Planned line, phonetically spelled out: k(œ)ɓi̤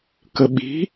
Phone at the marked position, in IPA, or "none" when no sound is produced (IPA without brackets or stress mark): ə